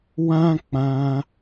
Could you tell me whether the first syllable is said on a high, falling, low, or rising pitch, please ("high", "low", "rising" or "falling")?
high